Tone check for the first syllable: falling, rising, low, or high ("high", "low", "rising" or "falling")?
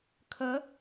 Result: rising